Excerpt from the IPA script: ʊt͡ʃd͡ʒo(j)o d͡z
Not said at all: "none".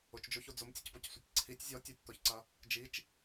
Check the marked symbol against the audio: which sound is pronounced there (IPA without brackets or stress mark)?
ç